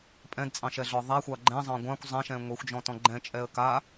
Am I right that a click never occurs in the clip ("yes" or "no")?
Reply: no